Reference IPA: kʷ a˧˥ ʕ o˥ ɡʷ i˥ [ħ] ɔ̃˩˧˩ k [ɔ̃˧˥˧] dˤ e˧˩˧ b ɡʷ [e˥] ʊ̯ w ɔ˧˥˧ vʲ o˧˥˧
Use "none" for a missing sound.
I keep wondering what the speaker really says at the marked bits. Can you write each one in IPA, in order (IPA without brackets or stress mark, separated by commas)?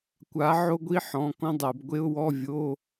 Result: ħ, ɔ̃˥, e˥